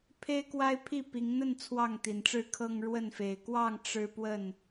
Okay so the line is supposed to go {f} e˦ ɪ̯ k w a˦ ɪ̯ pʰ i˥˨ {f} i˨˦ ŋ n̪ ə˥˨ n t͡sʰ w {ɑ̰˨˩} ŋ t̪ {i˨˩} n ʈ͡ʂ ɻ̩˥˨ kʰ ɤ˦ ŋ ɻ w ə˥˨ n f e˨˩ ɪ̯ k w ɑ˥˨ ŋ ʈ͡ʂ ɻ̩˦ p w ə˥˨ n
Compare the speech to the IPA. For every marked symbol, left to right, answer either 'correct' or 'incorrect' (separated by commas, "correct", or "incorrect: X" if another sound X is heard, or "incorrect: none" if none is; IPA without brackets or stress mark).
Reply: incorrect: pʰ, incorrect: p, incorrect: ɑ˥˨, correct